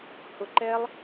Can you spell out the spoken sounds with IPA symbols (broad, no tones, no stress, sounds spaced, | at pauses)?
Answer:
h ʊ ǃ ɛ lˠ